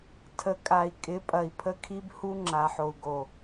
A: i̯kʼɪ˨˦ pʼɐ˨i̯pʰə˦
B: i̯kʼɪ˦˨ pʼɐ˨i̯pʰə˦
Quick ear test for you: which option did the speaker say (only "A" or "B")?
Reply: A